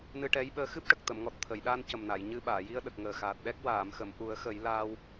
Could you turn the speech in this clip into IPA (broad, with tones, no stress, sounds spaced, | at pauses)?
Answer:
n ɨ˧ ʈ ɛ˧˥ j ɓ əː˧ x ɨ˦˥ p̚ ʈ ə˨˩ k̚ t̪ ə˨˩˨ m ŋ ɔ˨˩ t̚ t̪ʰ ə˨˩˨ j ɗ aː˧ n c ə˨˩ m n a˨˩˨ j ɲ ɨ˧ ɓ aː˨˩˨ j i˧ ə̯ ɗ ə˨˩ k̚ ŋ əː˨˩ x aː˨˩ t̚ ɗ ɛ˦˥ k̚ w aː˨˩˨ m x ə˨˩˨ m ʔ u˨˩˦ ə̯ x ə˨˩˦ j l aː˧ w